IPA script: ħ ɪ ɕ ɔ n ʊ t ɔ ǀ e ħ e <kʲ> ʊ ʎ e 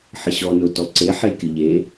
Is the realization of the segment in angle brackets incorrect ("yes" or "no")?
no